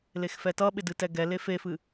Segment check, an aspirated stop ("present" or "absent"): absent